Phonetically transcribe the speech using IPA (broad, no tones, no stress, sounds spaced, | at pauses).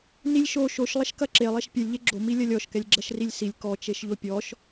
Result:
n i lʲ ʃ o ʃ o ʃ lˠ ɐ ʃ k ɐ ǁ e lˠ ɛ ʃ pʲ e lʲ ʎ e ɡ͡ǁ o m i lʲ ɐ lʲ ɔ ʃ k ɛ lʲ ɡ͡ǁ ɐ ʃ r i lʲ s i lʲ k ɔ t͡ʃ e ʃ ʎ o pʲ ɔ ʃ